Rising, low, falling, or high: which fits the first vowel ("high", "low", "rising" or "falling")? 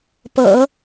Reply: low